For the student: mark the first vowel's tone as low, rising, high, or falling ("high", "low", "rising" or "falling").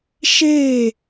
falling